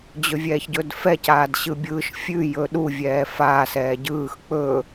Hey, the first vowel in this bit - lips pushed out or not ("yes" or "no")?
yes